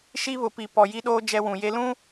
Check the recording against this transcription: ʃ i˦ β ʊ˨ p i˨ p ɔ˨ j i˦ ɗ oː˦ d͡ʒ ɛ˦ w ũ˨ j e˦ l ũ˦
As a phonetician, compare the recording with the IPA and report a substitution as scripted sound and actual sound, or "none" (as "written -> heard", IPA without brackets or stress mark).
none